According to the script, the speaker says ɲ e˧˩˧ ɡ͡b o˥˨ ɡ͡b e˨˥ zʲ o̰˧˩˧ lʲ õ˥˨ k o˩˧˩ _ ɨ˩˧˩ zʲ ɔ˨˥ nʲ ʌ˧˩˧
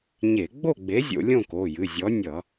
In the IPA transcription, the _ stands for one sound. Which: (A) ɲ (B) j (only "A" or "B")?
B